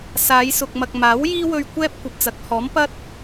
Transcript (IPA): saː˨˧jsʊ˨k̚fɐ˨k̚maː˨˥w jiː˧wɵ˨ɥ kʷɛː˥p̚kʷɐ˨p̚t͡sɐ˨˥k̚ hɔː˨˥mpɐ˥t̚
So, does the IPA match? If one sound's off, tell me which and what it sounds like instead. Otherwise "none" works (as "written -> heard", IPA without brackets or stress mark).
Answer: f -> m